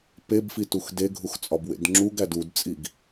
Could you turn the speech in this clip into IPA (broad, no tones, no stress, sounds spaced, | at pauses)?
p e b f i t u x d e ɡʱ u x t͡sʼ ɒ b w ḛ d ŋ͡ǁ u ɡ æ d u d t͡sʼ i ɡ